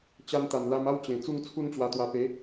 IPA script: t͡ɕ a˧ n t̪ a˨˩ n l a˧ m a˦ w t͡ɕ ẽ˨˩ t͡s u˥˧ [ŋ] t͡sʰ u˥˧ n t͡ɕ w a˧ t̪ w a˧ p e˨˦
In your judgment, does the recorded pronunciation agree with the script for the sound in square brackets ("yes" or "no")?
yes